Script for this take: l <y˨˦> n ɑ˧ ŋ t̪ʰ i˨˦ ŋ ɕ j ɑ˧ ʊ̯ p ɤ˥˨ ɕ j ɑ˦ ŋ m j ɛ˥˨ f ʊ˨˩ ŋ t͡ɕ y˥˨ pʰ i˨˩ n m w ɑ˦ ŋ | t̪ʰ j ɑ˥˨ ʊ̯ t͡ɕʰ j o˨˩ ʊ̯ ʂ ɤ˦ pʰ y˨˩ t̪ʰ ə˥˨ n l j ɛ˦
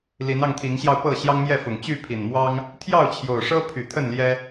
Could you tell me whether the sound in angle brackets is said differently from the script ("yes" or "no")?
yes